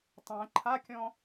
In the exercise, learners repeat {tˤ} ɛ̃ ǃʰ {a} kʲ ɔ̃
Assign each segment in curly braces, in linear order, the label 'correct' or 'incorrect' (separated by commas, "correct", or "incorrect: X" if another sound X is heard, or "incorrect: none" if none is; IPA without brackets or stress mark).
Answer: correct, correct